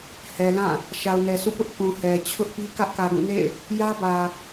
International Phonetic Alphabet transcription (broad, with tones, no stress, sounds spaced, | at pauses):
h ɛ˨ l ã˦˨ | ʃ a˨ ʊ̯ n ɛ˨ sʰ ṵ˦˨ p ʊ˦ ʔ k ũ˨ h ɛ˨ t͡ɕʰ ʊ˦ ʔ p i˦ k ä˦ ʔ k ä˨ ɡ ũ˦˨ n ḛ˦˨ ɪ̯ | j ä˦ b ä˨